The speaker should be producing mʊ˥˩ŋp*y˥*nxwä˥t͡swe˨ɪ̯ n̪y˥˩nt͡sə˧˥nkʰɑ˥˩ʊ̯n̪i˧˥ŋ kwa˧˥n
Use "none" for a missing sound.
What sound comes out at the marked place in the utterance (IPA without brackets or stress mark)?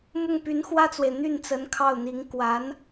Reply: y˧˥